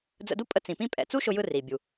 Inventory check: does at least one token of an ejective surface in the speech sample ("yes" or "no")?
yes